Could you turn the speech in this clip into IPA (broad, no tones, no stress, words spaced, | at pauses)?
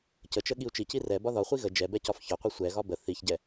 cət͡ʃə ɠiu̯t͡ʃici rɛbɒ ðɒχʷi ɣə d͡ʒɛbɛ cɒfçɒqʷi sʷɛɣɒ bə θiçɟɛ